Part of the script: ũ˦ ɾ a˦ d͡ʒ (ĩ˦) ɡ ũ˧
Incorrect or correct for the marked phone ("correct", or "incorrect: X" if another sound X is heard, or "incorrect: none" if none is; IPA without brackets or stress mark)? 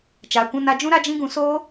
correct